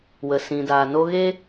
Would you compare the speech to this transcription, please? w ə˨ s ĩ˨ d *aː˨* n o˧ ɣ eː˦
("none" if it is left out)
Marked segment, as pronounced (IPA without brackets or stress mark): aː˨